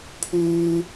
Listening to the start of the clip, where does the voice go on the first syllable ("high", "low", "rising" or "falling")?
high